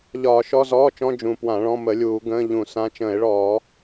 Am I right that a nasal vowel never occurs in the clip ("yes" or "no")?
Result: no